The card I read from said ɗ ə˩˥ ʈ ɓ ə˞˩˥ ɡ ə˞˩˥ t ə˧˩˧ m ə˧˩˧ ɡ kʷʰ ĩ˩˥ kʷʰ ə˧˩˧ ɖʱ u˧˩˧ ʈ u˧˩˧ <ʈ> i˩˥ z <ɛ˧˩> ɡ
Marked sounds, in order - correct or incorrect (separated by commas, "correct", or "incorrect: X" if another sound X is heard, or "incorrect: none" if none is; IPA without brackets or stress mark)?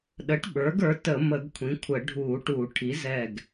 incorrect: ʈʰ, correct